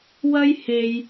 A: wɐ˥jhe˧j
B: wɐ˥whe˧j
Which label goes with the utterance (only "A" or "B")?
A